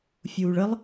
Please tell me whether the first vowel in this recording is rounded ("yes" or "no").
yes